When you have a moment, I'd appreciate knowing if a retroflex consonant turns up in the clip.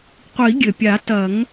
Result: no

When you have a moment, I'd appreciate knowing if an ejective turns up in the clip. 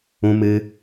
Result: no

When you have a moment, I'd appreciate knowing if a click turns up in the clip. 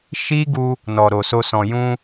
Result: no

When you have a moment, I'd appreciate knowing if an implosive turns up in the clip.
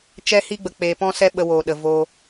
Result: yes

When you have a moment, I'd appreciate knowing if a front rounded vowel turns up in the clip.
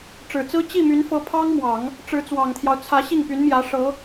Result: yes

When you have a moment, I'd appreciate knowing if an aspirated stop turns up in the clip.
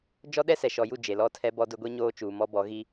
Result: yes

